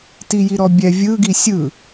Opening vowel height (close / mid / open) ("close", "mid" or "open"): close